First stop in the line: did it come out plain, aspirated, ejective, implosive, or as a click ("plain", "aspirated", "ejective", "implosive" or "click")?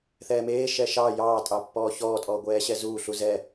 ejective